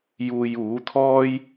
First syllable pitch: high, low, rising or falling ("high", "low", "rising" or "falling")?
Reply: low